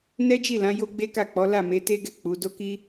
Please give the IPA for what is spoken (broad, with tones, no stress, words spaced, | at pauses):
nɛ˦d͡ʒi˦˨lã˨˦ jo˦ɡ͡be˦ka˦˨k͡pɔ˨˦ la˦˨me˨˦te˦ɡɛ˦˨ k͡pu˨˦ do˦ki˦